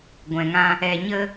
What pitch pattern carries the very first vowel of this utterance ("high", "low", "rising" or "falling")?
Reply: low